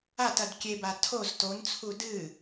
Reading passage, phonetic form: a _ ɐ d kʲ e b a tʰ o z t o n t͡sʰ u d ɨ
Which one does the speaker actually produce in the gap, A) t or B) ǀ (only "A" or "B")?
A